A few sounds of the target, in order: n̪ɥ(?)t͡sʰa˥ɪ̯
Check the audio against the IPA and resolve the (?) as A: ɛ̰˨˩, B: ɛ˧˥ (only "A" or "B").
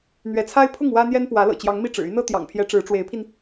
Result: B